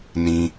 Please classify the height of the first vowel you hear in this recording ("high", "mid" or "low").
high